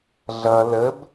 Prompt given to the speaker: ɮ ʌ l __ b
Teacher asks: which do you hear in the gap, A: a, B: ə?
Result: B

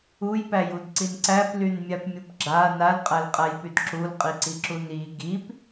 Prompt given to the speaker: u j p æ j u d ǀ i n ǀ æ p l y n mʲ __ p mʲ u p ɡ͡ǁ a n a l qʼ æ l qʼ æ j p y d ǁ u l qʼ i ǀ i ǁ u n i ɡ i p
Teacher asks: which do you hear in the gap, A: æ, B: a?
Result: B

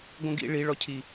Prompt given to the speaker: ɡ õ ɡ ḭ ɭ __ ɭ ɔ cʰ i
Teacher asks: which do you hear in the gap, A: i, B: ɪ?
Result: A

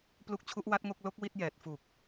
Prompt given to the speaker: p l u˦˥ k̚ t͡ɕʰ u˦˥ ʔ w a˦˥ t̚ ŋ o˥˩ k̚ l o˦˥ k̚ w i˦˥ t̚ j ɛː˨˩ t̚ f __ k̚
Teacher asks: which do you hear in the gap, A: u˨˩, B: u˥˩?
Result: A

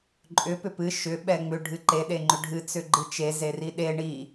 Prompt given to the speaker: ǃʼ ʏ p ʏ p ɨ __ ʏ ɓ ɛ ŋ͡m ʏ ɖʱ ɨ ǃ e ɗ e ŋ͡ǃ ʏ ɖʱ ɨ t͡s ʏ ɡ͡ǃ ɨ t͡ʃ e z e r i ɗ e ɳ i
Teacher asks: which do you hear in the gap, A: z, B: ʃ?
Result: B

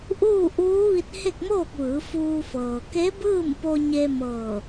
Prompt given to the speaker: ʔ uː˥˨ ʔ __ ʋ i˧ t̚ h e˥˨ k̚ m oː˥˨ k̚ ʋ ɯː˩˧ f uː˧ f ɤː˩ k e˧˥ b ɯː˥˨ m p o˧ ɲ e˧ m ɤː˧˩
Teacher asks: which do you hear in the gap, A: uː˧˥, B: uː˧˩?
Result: A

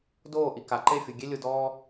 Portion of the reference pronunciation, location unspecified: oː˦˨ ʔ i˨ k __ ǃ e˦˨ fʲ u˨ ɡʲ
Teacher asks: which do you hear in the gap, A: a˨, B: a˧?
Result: A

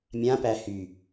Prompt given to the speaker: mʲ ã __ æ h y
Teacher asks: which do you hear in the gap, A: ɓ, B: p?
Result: B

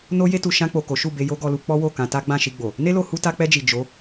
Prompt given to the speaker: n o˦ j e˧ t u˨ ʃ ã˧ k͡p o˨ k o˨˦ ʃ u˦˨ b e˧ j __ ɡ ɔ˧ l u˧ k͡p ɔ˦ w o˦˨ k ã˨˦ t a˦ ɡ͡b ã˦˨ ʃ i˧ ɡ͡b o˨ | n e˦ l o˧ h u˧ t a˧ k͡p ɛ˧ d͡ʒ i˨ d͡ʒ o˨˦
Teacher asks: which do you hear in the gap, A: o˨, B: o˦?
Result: B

